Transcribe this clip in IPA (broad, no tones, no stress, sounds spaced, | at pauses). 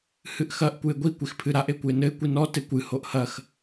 h ɨ ʔ x ɐ ʔ kʷ ɨ e̯ ɡʷ i kʷ e x pʰ ɨ ɾ a ʔ e kʷ ɨ e̯ n ɘ e̯ kʷ i n ɔ t e kʷ ɨ h o ʔ h ɐ x